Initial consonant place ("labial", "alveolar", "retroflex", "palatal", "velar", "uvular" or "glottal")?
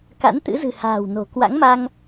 velar